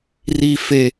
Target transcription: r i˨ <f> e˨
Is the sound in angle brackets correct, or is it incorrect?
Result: correct